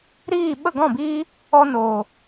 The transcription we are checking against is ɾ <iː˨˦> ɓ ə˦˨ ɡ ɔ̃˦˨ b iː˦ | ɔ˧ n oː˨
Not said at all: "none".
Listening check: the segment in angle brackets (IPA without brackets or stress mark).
iː˦˨